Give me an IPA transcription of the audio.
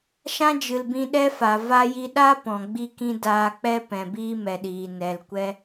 ʃ ã˦ d͡ʒ ɨ˨ l b ĩ˧ ɗ ɛ˦ f a˨ v a˧ j i˧ ɗ a˦ p ɔ̃˨ ɡ͡b i˦ k ĩ˦ d aː˧ k͡p ɛ˦ p ɛ̃˨ b iː˦ m ɛ˨ ɗ iː˨ n ɛ˨ l kʷ ɛ˦

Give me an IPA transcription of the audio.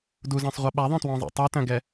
d u z ɛ̃ sˤ ʁʷ ɛ ɓ a ðˤ œ̃ t w ɔ̃ zˤ a̰ tˤ u t œ̃ ɡ ɛ

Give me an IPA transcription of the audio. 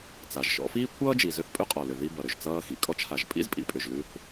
t͡s a˩ ʒ ʃ ɔ̰˧ f iː˥ kʷʰ ʌː˥ d͡ʒ i˩ z ʏ˧ θ pʼ ʉ˧ qʼ ɔ˩ l ʏ˩ ð i˧ b ʌ˩ ɾ ʏ˩ ʒ t͡s ʌː˧ x ḭ˧ kʼ ɔ˧ t͡ʃ h a˩ ʒ pʼ ḭ˥ z pʼ ḭ˧ pʼ ʏ˩ ʒ l ʉ˧ θ

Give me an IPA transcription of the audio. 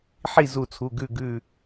ħ i˥˨ z u˧˩ t͡sʰ u˩˧˩ ɡ ʉ˥˨ ɡ ʉ˧˩

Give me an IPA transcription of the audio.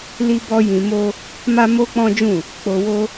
l i˦ b ɔ˦ j ĩ˧ m o˦ | m a˦ m o˦ k͡p ɔ̃˦ d͡ʒ ũ˦˨ | k͡p o˧ w o˦

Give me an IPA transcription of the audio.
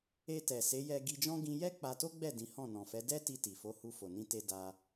e˧ t ɛ˨ s e˨˦ j ɛ˧ ɡ i˧ d͡ʒ ɔ̃˦ ɡ ĩ˧ j ɛ˦ k͡p a˧ t o˦ ɡ͡b ɛ˦˨ d ĩ˨˦ h ɔ̃˦˨ n ɔ̃˨ f ɛ˨˦ d ɛ˦ t i˧ t i˨ f o˨˦ h u˧ f o˨ n ĩ˧ t e˧ d a˧

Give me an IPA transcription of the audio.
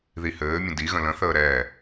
ð i h ɘː mʲ ə̃ d i ɣ ə̃ l ə̃ θ əː ɾ ɛ

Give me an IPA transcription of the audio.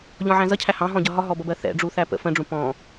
ʎ ɔ̃ ʕ æ̃ z ʌ cʰ æ h ɑ̃ ɦ ɔ̃ ɟ ʌ ɦ ɒ ɦ ɔ b ʌ b ɜ θ ɛ̰ ɖ͡ʐ u θ æ p ə̰ f ə̃ ɖ͡ʐ ũ p ɔ̃

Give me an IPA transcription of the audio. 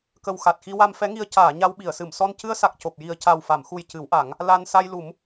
k ə˨˩ w x a˨˩ t̚ x i˧ w a˧ m f ɛ˧˥ ŋ i˧ ə̯ c aː˨˩˨ ɲ a˧ w ɓ i˨˩˨ ə̯ s ɨ˨˩˨ m s ɔ˧ n c ɨ˧ ə̯ s a˨˩ k̚ c o˨˩ p̚ j i˨˩ ə̯ c a˨˩ w f a˨˩˨ m x u˨˩ j c ɨ˨˩˦ w ʔ a˨˩˦ ŋ | l a˧ n s a˧ j l u˨˩˦ m

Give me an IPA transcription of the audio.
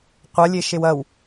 qʷ ɐ lʲ e ʃ e w ɐ w

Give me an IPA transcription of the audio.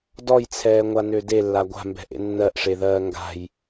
d ɔ j t͡sʰ ɛː ŋʷ a n ø d e lː a ɡʷ a̤ m b ɛ̤ ʔ ḛ nː ɜ ʔ ʂ e ð ɜː ŋ ɡ a̤ j

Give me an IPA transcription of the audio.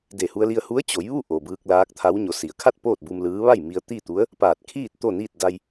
d e˧˩ h u˧ ə̯ l i˧ ə̯ h u˧˥ ə̯ t͡ɕ o˩˧ j ʋ u˥˨ ʔ o˩ b ɯː˧ k̚ l aː˧˥ k̚ t̪ʰ a˧˥ w ɲ o˩˧ s i˩ ə̯ kʰ a˥˨ t̚ p oː˥˨ t̚ b u˧ m l ɯː˧˥ ʋ a˥˨ j m i˧ ə̯ t̪ i˥˨ t̪ u˧˥ ə̯ | p aː˧˩ t̚ kʰ iː˥˨ t̚ t̪ o˥˨ n iː˥˨ t̚ d a˧ j

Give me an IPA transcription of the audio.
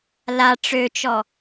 l a ʈ͡ʂ ø t͡ʃ ɔ

